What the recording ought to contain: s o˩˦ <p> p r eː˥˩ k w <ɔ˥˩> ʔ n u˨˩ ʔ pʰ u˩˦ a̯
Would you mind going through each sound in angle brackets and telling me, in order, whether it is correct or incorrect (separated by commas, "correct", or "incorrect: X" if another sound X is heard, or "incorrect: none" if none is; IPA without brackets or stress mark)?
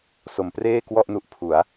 incorrect: m, correct